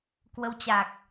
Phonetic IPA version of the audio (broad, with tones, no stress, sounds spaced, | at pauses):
k w ə˨˦ w t͡ɕ a˨˩ k̚